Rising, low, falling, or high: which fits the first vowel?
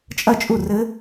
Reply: falling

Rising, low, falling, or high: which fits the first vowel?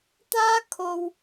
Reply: high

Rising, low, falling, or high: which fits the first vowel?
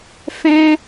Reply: high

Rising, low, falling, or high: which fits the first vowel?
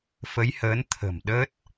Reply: rising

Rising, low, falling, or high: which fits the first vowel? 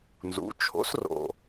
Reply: rising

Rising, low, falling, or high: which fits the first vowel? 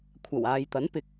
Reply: low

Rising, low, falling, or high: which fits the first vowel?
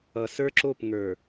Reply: low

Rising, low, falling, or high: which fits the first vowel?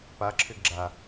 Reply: rising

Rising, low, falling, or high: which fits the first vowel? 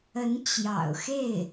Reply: rising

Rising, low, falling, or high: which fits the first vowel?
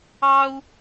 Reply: high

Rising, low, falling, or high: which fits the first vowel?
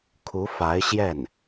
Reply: rising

